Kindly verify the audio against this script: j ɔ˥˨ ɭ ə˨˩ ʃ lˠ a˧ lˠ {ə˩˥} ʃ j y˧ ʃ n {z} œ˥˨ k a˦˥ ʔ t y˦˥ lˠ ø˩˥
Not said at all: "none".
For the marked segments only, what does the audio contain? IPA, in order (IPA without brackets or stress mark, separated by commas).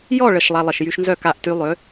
ə˨˩, z